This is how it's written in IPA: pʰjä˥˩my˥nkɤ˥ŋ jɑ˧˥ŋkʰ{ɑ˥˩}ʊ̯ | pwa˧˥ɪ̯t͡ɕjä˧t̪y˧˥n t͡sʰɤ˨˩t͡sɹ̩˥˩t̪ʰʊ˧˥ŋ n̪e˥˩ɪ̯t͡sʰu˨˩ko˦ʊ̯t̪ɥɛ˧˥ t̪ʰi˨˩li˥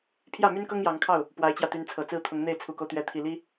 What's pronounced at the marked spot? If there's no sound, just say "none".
ɑ˥˩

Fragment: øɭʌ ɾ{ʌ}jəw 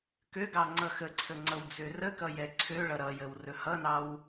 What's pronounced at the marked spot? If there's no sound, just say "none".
ʌ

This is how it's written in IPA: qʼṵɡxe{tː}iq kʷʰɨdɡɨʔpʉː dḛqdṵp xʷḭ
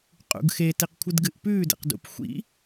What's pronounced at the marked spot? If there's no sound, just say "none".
t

